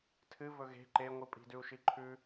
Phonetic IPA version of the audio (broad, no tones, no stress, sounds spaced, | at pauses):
tʰ ɨ v ɵ ɣ e̤ ǃ e ŋʷ ɨ pʼ i̤ d ʉ u̯ ʃ i ǃʰ ʉ